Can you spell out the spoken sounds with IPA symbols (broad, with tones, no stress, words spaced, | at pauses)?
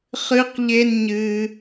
χɨ˦qʎe˦n ɲɨː˦